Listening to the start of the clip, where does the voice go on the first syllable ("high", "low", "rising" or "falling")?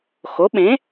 rising